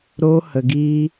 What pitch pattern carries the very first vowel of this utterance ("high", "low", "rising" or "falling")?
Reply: high